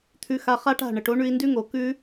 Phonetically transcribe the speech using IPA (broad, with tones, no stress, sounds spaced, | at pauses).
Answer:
t̪ʰ ʉ˧ x a˧ χ a˦ ʈ a̤˦˨ ɳ ə˨ ʈ o˦ ɳ ʉ˧ i̯ n d ʉ˦ ŋ o˨ k ʉ˦